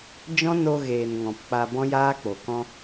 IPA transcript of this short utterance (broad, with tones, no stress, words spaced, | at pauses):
d͡ʒɔ̃˦no˧ ɣeː˨n ŋɔ̃˨pk͡pa˧ bɔ̃˦jaː˦k͡po˨ kɔ̃˧